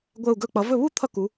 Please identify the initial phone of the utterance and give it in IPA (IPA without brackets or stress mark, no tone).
ɡʷ